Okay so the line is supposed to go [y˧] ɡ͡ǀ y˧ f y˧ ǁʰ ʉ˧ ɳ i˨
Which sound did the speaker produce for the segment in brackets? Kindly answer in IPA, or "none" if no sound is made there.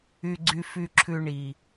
y˧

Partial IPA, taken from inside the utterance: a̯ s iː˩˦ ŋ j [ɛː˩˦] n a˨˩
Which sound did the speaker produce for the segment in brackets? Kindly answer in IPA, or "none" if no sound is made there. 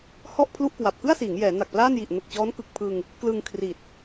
ɛː˩˦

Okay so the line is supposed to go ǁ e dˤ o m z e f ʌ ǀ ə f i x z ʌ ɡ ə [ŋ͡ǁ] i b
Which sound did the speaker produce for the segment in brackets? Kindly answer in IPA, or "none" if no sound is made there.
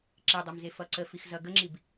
ŋ͡ǁ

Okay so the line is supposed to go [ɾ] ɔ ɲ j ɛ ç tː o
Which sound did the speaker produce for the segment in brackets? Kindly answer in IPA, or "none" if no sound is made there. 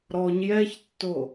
ɾ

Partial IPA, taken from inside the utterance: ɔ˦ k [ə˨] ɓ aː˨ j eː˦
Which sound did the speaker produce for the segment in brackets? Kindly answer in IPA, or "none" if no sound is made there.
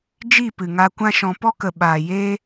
ə˨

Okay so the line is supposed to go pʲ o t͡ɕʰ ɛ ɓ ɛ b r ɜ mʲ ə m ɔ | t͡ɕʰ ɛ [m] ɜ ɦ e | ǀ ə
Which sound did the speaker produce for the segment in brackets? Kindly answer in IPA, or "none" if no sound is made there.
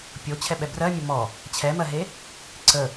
m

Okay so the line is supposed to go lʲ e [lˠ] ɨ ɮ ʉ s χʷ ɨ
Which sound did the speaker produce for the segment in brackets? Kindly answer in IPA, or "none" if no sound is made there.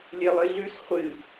lˠ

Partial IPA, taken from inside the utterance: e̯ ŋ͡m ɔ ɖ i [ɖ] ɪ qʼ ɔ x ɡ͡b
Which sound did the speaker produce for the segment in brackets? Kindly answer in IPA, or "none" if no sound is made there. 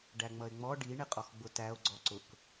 ɳ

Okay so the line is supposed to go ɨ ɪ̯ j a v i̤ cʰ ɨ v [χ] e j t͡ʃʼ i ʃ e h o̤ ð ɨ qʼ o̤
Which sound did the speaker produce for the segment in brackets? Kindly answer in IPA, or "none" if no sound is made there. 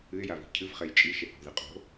χ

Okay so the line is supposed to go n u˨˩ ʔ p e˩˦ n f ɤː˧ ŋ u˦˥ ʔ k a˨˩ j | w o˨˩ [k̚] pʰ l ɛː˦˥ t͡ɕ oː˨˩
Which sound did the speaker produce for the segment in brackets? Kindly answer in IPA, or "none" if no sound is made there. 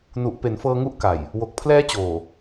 k̚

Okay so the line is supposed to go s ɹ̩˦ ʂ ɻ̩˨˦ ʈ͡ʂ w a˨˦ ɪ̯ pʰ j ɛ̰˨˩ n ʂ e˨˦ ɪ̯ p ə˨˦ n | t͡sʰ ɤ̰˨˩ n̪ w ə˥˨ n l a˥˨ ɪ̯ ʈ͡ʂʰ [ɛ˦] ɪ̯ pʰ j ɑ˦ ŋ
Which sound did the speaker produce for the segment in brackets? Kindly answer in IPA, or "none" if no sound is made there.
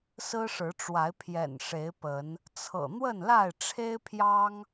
e˦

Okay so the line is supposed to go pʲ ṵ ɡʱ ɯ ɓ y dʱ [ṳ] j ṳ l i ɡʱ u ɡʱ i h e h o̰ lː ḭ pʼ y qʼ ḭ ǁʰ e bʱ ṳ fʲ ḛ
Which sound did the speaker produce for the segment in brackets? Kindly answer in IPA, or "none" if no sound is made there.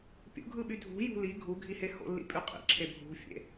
ṳ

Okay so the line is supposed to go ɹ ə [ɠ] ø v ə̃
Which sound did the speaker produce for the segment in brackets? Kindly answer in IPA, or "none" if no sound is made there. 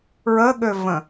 ɠ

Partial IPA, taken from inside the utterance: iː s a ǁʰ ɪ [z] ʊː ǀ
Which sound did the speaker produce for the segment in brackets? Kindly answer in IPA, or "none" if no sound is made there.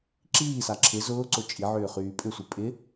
z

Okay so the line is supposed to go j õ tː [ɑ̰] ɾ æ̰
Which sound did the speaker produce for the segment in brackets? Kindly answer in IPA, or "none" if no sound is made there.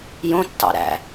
ɑ̰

